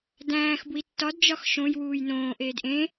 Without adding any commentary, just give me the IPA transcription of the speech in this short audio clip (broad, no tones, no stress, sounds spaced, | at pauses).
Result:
d æ̃ː x b w i tː ɒ d d͡ʒ ɒ x ʃ õ j w uː j n õː ʔ eː d ʔ ẽ